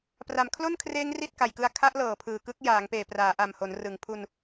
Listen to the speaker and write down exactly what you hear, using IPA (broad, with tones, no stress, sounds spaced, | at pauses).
p r a˩˦ m kʰ l o˥˩ n kʰ r eː˦˥ ŋ r i˥˩ t̚ k a˨˩ j k ɯ˦˥ a̯ kʰ a˦˥ ʔ l ɤː˨˩ pʰ ɯː˨˩ k ɯ˦˥ k̚ j aː˩˦ ŋ p eː˨˩ p r aː˩˦ ʔ a˨˩ m h o˩˦ n r ɯ˩˦ ŋ pʰ u˧ n